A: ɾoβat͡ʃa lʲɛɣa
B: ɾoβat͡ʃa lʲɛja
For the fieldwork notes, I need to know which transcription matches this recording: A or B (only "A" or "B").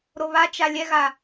A